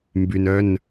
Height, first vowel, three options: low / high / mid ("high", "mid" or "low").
high